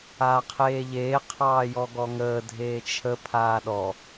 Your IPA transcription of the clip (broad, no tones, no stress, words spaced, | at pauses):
aːqʰeːʎeː qʰɑːjɔɡɔŋəː dʱeːt͡ʃʰə pʰaːɗɔ